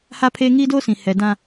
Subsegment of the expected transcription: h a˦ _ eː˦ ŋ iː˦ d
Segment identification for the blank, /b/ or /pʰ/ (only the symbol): pʰ